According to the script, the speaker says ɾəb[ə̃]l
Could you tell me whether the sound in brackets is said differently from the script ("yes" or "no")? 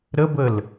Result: yes